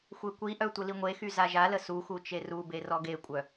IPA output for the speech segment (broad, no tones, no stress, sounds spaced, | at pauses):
xʷ e kʷ i ʔ œ tʷ ə l i ŋʷ e x y z a ʒ a l ə s u x u t͡ʃ e r u b e r ɔ ɡ e kʷʼ œ